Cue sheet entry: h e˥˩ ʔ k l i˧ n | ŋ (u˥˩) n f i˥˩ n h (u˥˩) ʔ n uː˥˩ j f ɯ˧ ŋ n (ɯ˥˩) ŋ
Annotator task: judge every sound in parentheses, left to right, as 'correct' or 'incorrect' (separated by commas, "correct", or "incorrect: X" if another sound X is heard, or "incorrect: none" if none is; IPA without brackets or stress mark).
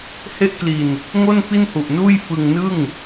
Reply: incorrect: o˥˩, incorrect: u˨˩, correct